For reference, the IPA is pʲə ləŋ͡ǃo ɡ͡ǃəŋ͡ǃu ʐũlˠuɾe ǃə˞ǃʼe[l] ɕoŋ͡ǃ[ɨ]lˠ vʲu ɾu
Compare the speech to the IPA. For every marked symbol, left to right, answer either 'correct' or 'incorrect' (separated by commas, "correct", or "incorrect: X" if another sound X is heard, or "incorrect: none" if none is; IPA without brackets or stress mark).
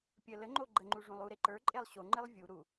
incorrect: lˠ, correct